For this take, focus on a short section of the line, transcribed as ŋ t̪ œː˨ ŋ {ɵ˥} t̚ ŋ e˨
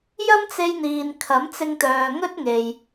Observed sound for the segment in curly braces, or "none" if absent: ɵ˥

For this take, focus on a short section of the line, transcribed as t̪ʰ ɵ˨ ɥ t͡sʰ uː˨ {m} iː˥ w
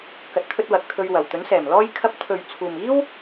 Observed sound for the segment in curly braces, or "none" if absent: m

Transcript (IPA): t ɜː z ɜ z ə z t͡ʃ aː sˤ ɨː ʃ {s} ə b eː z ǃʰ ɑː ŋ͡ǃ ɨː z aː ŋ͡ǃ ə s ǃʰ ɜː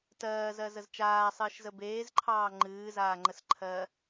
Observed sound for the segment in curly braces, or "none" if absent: z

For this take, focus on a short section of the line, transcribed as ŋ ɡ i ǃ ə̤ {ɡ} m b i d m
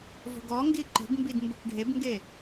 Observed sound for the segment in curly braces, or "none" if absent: ɡ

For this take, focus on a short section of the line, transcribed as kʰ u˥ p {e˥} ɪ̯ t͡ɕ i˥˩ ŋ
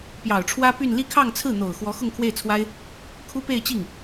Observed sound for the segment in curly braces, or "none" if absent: e˥˧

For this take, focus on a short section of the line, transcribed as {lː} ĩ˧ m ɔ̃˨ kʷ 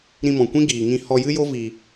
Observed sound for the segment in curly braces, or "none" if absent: ɾ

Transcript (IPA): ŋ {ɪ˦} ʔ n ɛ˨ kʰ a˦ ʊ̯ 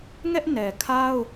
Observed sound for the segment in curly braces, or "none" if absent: ɛ˦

